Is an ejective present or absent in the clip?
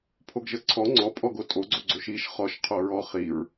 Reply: present